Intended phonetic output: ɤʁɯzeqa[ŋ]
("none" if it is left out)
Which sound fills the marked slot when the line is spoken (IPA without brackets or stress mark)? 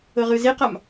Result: m